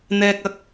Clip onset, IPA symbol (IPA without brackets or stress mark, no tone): n̪